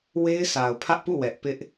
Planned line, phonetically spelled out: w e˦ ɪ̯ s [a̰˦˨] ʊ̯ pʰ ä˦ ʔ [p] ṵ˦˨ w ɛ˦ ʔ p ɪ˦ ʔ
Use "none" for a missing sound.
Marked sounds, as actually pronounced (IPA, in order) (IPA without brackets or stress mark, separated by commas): a˨, p